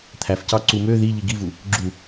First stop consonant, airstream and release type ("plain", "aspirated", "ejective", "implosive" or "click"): aspirated